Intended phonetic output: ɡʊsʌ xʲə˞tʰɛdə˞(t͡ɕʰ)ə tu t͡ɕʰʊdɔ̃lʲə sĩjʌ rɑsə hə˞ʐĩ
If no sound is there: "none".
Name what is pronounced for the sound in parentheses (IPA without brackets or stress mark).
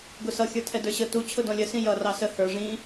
ɕ